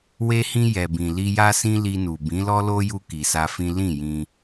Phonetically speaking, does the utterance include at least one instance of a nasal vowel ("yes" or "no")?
yes